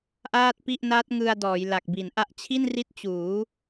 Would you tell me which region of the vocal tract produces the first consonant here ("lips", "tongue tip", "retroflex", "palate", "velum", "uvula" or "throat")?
throat